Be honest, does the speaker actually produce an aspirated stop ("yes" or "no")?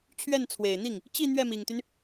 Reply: yes